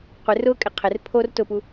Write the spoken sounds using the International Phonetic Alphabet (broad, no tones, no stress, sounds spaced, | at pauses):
qʷ ɪ r ʊ kʼ ɪ qʰ ɪ r pʰ o r t ʊ p u